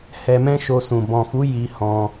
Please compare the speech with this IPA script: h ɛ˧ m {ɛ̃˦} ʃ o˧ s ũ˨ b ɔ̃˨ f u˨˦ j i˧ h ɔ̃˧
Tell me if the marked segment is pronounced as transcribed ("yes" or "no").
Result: yes